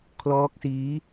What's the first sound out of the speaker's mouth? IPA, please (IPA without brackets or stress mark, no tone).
kʰ